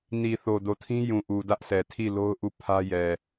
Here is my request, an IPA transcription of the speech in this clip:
n i˨ θ o˨ d o˨ tʰ ĩ˦ j ũ˨ ʔ u˨ d ä˦ ʔ s ɛ˨ tʰ i˦˨ l o˦ ʊ̯ ʔ u˦˨ pʰ ä˦ j ɛ˨

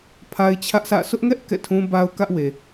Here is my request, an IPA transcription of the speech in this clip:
pʰ a˦ ɪ̯ t͡ɕʰ ä˦ ʔ sʰ ä̰˦˨ sʰ ʊ˦ ʔ ŋ ɛ˦ ʔ k ɛ̰˦˨ tʰ ũ˦ b a˦ ʊ̯ k ä˦ ʔ w e˨

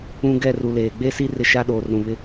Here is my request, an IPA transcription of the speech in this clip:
ũ˦ ɡ ɛ˦˨ r u˨ l eː˨ ɡ͡b e˦ s i˦ r ɪ˦ ʃ a˦ ɗ oː˨ r ɾ ũ˨ β ɪ˦

